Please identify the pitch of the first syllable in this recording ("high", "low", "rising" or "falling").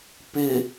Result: low